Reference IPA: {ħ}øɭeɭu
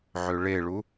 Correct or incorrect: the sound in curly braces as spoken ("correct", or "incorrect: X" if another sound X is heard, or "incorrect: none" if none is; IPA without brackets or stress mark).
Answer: incorrect: ʕ